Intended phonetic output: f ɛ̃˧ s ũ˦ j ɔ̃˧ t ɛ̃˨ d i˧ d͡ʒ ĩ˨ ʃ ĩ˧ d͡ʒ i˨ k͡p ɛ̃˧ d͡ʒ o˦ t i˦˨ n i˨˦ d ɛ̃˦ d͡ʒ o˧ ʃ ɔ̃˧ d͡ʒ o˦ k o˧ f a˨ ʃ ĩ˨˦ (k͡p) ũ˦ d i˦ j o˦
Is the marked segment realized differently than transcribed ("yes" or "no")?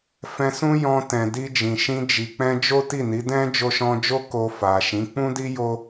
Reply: no